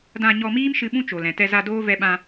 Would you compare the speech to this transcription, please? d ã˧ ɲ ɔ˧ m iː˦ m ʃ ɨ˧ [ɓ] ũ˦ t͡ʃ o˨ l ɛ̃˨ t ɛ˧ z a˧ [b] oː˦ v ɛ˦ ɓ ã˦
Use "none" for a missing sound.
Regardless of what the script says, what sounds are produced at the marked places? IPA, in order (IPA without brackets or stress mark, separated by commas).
ɓ, d